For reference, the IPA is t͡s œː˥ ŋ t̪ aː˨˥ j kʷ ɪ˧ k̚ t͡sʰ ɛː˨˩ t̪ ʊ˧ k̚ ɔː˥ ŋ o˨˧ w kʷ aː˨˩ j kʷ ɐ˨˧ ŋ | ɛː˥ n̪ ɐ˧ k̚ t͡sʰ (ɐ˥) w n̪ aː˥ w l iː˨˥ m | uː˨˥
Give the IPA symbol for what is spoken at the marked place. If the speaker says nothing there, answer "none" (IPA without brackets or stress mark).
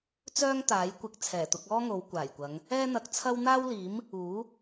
ɐ˥